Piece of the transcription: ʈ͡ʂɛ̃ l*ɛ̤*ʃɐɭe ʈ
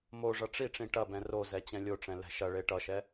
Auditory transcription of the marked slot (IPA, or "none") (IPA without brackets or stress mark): ɛ̤